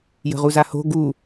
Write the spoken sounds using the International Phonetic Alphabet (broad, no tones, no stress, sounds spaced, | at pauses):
j ə̤ ʁ u z a h o̤ ɡ u